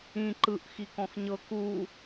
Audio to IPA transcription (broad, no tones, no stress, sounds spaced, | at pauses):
ĩ ǃ ɯ ʔ x i k ɔ̃ x ɲ ɤ k u